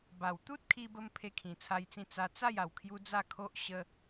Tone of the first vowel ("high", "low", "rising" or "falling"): low